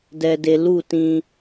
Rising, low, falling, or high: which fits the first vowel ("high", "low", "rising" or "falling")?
low